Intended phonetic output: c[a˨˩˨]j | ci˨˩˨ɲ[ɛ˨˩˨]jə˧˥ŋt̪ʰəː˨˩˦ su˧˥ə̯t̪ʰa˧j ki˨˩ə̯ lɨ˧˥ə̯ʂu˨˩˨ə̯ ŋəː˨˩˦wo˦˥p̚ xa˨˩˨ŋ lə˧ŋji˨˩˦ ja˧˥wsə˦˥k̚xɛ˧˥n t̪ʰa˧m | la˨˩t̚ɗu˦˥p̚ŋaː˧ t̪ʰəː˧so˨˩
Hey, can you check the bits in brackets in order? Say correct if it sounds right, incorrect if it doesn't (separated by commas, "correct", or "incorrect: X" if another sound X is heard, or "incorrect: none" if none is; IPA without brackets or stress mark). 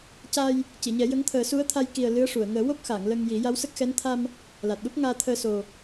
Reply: incorrect: a˧, incorrect: ɛ˨˩˦